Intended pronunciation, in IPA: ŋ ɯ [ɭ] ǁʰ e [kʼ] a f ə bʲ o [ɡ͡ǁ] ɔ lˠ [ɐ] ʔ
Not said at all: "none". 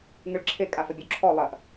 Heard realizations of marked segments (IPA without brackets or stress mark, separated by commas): ɭ, kʼ, ǁʰ, ɐ